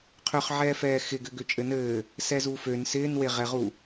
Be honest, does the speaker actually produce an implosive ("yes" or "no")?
no